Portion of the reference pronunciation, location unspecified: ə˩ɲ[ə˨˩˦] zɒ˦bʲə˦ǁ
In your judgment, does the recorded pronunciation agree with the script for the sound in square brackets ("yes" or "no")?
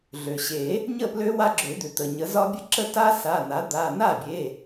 yes